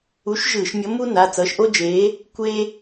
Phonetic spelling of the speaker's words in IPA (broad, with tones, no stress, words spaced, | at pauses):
u˨˥ʃ ʒɯː˧˩˧ʃmʲʌ˨˥mu˥na˩˧˩ t͡sʌː˨˥ʃʔo˥d͡ʒeː˨˥ | kʷeː˥